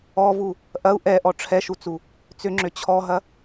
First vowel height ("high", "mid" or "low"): mid